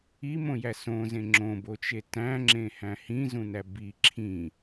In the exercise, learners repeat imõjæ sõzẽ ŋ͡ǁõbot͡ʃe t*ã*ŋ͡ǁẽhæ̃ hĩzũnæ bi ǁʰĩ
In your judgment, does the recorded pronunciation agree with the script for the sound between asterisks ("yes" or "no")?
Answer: no